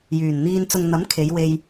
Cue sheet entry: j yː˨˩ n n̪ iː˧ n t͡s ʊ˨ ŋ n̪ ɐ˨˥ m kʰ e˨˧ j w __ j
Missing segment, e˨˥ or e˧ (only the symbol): e˧